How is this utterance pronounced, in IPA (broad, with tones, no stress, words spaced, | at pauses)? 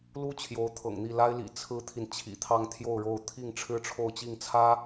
lu˥ t͡ɕʰjo˧˥ʊ̯t̪ʰɤ̰˨˩ŋn̪i˥˩ la˥ɪ̯lḭ˨˩ t͡sʰɹ̩˥t̪ʰi˨n t͡ɕʰḭ˨˩t̪ʰɑ˥˧ŋt̪ʰjo˥˧ʊ̯ɻo˥˧ʊ̯ t̪ʰi˥˩ŋ ʈ͡ʂʰɻ̩˥ʈ͡ʂʰo˥˧ʊ̯t͡ɕi˥˩ŋt͡sʰä˥